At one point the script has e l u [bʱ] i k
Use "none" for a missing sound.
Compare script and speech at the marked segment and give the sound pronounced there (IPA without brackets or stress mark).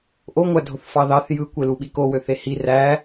ɓ